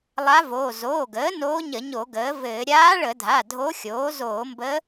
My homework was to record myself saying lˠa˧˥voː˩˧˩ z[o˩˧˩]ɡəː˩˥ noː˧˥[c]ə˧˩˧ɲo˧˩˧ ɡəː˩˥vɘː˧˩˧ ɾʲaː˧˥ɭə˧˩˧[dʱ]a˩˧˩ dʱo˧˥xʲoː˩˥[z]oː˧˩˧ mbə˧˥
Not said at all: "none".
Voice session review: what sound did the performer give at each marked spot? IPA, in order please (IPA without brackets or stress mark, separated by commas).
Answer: oː˩˧˩, ɲ, dʱ, z